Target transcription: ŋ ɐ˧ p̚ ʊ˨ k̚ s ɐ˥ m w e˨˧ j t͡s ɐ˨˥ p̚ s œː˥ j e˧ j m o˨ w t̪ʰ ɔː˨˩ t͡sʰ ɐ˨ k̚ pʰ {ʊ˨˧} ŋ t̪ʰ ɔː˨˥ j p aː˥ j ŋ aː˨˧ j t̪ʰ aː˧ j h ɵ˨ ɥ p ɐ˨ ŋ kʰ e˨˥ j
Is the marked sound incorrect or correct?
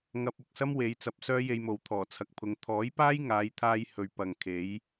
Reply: correct